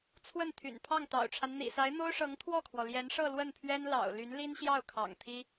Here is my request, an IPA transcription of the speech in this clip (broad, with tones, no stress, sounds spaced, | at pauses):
t͡sʰ w ə˥˩ n t̪ʰ y̰˨˩ n pʰ ɑ˥˩ ŋ t̪ ɑ̰˨˩ ʊ̯ ʈ͡ʂʰ a˦ n n̪ ḭ˨˩ s a˧˥ ɪ̯ n̪ o˥ ʊ̯ ʂ ɤ˧˥ ŋ t̪ʰ w ɔ˥˩ kʰ w ɔ˩ l j ɛ˧˥ n ʂ ɤ˥˧ l w ə˥˩ n pʰ ɥ ɛ˥ n l ɑ̰˨˩ ʊ̯ l y˧˥ n l i˥ n ɕ j ɑ˥˩ ʊ̯ kʰ ɑ̰˨˩ ŋ t̪ʰ i˥